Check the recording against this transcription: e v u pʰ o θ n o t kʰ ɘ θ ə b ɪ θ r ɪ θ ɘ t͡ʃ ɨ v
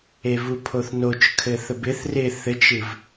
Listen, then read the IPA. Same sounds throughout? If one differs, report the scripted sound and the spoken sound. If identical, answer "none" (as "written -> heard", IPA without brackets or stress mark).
t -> t͡ʃ